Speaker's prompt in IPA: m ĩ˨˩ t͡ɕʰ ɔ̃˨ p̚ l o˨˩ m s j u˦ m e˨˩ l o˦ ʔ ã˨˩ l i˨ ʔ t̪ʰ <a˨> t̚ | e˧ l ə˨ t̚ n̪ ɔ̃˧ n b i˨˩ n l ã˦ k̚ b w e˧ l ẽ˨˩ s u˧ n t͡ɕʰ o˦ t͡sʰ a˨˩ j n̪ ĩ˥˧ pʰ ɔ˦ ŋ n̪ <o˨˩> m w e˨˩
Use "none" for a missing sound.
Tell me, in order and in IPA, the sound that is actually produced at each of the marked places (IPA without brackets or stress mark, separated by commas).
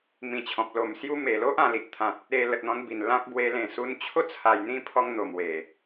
ã˨, o˨˩